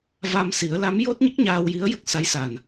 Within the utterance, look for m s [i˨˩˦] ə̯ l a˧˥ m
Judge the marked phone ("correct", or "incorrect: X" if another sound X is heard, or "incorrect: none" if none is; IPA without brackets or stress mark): correct